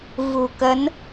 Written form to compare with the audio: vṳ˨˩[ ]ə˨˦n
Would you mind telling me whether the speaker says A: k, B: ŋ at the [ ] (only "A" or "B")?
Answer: A